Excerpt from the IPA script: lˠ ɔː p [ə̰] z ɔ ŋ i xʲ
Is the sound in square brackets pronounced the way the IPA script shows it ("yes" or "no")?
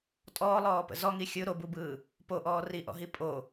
yes